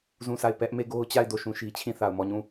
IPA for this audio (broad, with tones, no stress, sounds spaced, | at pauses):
z ũ˦˨ s a˦˨ ɪ̯ p ɛ˦ ʔ m e˦˨ ɡ o˦ ʊ̯ t͡ɕ a˦˨ ɪ̯ d o˦˨ ʃ ũ˦˨ ʃ i˦ t͡ɕʰ ĩ˦˨ θ a˨ ʊ̯ m ɔ˦˨ ɲ ũ˦˨